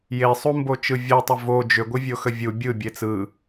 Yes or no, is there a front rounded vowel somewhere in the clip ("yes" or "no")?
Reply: yes